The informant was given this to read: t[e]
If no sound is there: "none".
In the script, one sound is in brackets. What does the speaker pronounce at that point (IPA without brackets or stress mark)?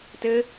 ɘ